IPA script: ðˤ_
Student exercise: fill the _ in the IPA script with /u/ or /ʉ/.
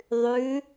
ʉ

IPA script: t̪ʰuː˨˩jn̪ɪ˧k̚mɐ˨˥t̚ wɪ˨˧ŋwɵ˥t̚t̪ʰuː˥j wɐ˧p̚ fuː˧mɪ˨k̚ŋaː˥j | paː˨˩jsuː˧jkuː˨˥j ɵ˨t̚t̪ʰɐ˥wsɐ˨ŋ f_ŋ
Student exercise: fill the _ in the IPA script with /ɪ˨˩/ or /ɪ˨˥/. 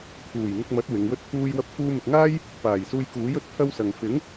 ɪ˨˥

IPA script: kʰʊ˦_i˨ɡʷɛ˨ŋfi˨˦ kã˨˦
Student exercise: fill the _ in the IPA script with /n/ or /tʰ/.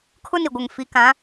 n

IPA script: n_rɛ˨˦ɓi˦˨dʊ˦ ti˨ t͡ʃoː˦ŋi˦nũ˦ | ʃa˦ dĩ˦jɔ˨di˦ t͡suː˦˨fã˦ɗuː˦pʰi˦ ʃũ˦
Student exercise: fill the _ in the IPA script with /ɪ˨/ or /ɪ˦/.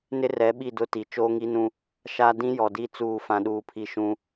ɪ˦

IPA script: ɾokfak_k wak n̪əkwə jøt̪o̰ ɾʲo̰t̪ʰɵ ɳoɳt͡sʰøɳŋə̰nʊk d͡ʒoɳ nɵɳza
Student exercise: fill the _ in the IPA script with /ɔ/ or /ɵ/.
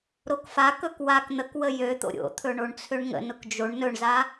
ɵ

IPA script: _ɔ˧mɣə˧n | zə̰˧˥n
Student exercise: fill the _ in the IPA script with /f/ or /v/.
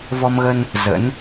v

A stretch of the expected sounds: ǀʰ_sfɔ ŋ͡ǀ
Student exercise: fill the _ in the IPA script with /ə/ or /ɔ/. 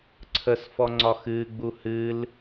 ə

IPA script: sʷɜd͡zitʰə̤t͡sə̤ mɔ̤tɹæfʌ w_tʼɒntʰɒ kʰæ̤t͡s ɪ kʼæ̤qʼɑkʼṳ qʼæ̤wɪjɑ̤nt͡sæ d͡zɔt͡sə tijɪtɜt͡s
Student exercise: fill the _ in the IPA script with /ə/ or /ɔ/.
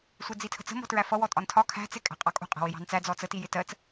ɔ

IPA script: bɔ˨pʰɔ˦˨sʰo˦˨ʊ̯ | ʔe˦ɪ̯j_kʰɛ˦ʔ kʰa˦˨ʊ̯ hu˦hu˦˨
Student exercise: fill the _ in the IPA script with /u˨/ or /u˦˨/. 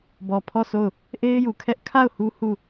u˨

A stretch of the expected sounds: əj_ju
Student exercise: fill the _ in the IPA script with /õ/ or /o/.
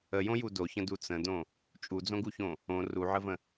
õ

